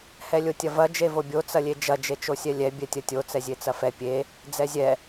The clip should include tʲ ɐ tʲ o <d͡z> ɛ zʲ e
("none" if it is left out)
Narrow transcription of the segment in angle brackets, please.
t͡s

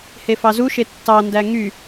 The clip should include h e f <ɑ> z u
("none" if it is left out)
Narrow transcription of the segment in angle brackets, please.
ɑ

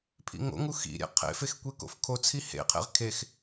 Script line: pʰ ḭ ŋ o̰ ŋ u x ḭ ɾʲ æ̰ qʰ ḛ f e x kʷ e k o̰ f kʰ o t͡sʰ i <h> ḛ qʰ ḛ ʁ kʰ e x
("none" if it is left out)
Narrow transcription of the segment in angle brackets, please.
h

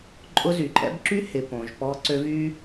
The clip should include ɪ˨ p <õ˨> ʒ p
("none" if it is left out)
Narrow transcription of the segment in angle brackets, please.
õ˨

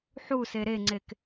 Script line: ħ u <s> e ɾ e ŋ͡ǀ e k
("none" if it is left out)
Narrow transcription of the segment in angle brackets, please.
s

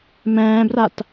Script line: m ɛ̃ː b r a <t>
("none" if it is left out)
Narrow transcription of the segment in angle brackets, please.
t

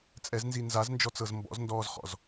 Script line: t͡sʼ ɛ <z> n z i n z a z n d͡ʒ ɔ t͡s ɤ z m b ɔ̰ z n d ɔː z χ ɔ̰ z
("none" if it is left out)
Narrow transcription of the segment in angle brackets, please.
z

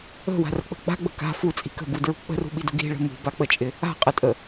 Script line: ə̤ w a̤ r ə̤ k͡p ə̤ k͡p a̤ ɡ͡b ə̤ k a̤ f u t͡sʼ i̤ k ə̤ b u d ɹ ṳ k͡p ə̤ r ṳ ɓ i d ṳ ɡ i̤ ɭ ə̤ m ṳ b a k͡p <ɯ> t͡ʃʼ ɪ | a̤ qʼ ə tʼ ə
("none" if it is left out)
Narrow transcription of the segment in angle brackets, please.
ə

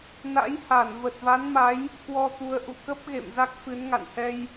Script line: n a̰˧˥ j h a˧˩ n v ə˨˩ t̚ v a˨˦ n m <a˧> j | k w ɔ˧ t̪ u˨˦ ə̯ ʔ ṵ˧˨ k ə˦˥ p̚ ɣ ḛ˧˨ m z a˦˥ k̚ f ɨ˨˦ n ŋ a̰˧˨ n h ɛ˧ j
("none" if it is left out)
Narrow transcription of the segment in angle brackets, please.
a˨˦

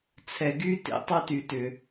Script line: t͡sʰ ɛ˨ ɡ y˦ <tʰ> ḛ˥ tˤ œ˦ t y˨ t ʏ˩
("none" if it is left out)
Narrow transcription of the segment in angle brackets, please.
t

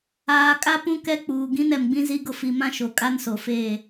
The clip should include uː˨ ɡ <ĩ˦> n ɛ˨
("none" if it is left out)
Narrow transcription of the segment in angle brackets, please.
ĩ˦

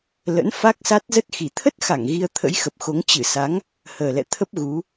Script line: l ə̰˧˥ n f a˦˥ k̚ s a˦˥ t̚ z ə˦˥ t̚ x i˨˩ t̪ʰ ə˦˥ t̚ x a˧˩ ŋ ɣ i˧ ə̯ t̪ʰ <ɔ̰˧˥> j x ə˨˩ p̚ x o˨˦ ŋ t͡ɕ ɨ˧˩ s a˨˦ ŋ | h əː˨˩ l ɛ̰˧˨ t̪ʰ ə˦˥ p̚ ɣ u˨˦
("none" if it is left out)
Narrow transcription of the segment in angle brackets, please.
ə̰˧˥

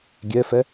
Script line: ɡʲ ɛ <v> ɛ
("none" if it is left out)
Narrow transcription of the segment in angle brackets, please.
f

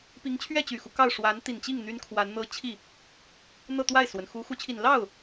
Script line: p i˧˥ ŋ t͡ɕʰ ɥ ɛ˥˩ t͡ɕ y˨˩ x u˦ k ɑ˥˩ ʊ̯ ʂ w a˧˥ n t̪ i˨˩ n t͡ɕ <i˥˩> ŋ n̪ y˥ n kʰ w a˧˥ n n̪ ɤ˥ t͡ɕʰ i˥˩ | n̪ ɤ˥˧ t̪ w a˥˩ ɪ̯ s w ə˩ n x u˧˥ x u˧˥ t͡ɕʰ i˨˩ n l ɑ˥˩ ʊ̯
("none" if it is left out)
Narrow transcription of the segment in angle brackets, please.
i˥˩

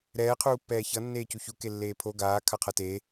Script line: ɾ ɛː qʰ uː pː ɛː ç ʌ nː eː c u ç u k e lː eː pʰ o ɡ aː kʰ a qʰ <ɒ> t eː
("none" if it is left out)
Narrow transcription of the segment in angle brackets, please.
ʌ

